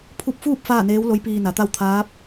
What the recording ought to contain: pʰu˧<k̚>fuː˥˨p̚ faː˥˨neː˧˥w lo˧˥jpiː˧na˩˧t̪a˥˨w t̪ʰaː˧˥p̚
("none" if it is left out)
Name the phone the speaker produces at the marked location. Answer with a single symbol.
p̚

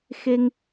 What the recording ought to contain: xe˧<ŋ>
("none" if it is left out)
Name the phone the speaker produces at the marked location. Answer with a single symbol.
ŋ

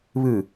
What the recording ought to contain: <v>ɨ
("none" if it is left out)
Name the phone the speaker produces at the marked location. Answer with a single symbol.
β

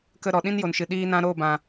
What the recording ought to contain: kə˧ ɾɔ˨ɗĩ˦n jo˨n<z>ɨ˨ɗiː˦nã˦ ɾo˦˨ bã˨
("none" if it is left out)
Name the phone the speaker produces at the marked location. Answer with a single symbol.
ʃ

